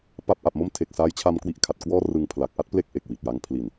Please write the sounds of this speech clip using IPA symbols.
p a˦˥ p̚ ʔ a˨˩ p̚ m o˥˩ m tʰ e˨˩ k̚ s aː˦˥ j t͡ɕʰ a˧ m k w i˥˩ ʔ kʰ a˨˩ t̚ k w ɔː˥˩ r ɯ˧ ŋ pʰ l a˨˩ k̚ ʔ a˥˩ t̚ p l e˦˥ k̚ ʔ e˨˩ k̚ w i˨˩ t̚ j a˦˥ ŋ pʰ l i˨˩ n

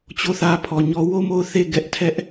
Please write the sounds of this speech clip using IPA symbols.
t͡ɕ o˦˨ θ ä˦ pʰ ɔ˨ ɲ ɔ˦ w o˦˨ m o˦˨ ʊ̯ θ e˦˨ ɡ ɛ˦ ʔ tʰ ɛ˦ ʔ

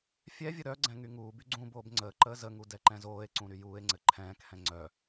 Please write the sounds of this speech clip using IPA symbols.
fʲ ɛ vʲ ə ɾ œ ɡ͡ǀ ɛ̃ ŋ y ŋ uː b y ɡ͡ǀ ũ b oː b ŋ͡ǀ əː ǃ əː z ə ŋ u d ɛ ǃ ɛ̃ z oː e̯ ǀ ũ ɾ y j uː e̯ ŋ͡ǀ ɘ ǃʰ ɛ̃ː k h ɛ̃ ŋ͡ǀ œ

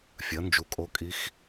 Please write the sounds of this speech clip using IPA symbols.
fʲ ɐ˩˥ n d͡ʒ u˩˥ kʼ o˧˥ kʼ i˧˥ x

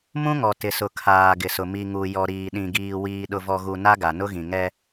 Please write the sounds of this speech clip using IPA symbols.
m ũ˦ ŋ ɔ˨ t ɪ˨ s ʊ˨ kʰ aː˨ ɡ ɪ˨ s ʊ˨ m i˨ ŋ u˨ j ɔ˨ ɾ iː˨ ɗ ĩ˨ ɡ iː˨ w iː˨ ɗ ʊ˨ v ɔ˨ ɣ u˨ n a˦ ɡ a˨ n ʊ˦ ɣ ĩ˨ ŋ ɛ˦

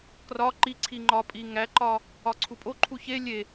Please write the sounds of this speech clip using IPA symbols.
k r ɒ ǃ i ǀʰ i ŋ͡ǃ ɒ pʼ i ŋ æ ǃ ɒ | ɒ ǀʰ u pʼ o ǃʰ u ç e lʲ e

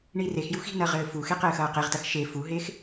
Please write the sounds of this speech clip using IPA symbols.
ɳ i r e x j u x i̤ n ɐ ʁ ɘː f u x e q ɘː x ɐː q e ʁ t ɐ x ʃ e f u ɦ e x

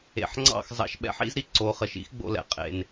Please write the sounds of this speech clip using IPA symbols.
ḛ˨ ħ ŋ͡ǀ ɑ̰˦˨ x z ɑ̰˧ ʃ ɓ ɛ̰˨˦ ħ ḭ˦ z ɾ i˧ ǀ o˨˦ χ ə˨ ʃ ḭ˦ x ɡ͡b o̰˧ l ɛ̰˨ qʼ ḛ˨ n

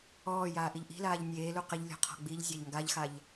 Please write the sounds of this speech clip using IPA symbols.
ɔː j aː ʔ i ʎ ʔ i̤ l aː ʎ nʲ eː l u q ɪ ʎ lʲ ɔ̤ qʰ ɔ̤ ɡ͡b i ʎ zʲ a ʎ ŋ ɡ a ʎ x a ʎ

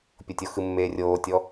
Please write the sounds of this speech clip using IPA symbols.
pʲ o tʲ o x ɯ mː eː rʲ oː tʲ ɔ

